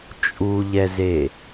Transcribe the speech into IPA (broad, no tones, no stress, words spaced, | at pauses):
t͡ʃʼuʎɛze